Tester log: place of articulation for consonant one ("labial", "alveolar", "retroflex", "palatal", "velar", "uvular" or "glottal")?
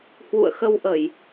glottal